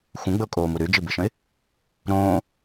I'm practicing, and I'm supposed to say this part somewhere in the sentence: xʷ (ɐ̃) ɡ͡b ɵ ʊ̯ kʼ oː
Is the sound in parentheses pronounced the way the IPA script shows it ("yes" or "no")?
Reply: no